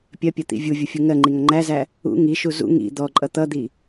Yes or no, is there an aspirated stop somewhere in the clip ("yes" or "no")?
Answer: no